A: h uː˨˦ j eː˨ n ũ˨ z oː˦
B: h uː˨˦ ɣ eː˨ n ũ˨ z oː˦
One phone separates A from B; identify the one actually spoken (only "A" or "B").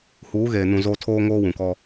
B